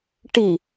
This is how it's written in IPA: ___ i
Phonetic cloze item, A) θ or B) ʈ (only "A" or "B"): B